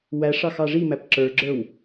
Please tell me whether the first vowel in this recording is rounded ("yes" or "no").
no